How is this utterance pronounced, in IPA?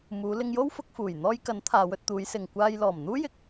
muː˨˧lɪ˧ŋjo˥w fʊ˧k̚fuː˨˩j n̪ɔː˧jkɐ˨˥n t̪ʰaː˨˧wɵ˧t̚ t̪uː˨˧jsɪ˨ŋ kʷaː˧j lɔː˨˩mn̪uː˥jɪ˧k̚

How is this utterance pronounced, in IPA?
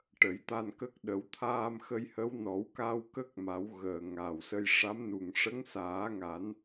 ʈə˨˩˦jt̪a˧nkə˦˥k̚ ɗə˨˩˦wt̪ʰaː˧mxə˧jhə˧˥w nɔ˨˩˦wka˧w kə˦˥k̚ma˨˩˦w ɣəː˨˩ŋaː˨˩wsə˧j ʂa˧˥mnu˨˩ŋ ʂə˧˥ŋsaː˨˩˦ŋa˨˩˦n

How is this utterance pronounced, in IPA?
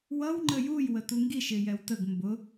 wʌw ŋ͡ǃəjuj wətuŋɡiʃ ɪjɛwtəɡ mbʊ

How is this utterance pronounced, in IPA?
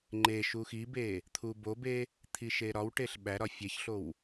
ŋ͡ǃe ʃuxibe | t̪ʰubobe | t̪ʰiʃeɾɒwʈeɬ ɓæɾɒ fʲeçɬow

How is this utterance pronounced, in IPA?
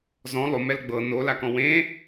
zɔ̃ lˠomɛl ɡ͡bɤ nolakɔ̃ wẽ

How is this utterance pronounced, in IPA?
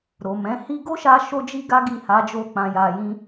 ɾo˨mɛ̃˨˦ hi˧ɡo˦ʃa˧ ʃo˦d͡ʒi˦ɡa˦ ɡi˦˨ha˨˦d͡ʒo˧k͡pã˨ ja˨jĩ˧

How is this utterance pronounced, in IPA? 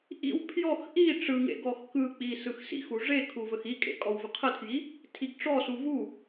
ʔḭw pʰjɔx ʔi ʈ͡ʂɯŋḛ ɡɔxkɯk͡pi sɯxsḭxu ʐekʰu vəxikʼḛ kʼɔwvəqʰətʰji | tʰiɡʈ͡ʂɔsu vu

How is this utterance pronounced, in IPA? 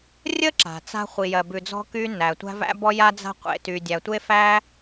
rʲə˥ ǁa̤˩t͡sa̤˥ χʷi˩jɜ˩bʉ˩d͡zɔ̤˥ kyː˥nːæː˩tʷæ̤˥ væ̰˥bɔ˥ ja˥d͡za̤˥qʷḛ˩ tyː˩dʲæ˩tʷe˥ fæ˥

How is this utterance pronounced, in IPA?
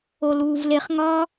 oluːvleχ ŋɒ

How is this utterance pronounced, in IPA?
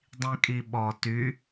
dˤĩkʼiɓɔ ty

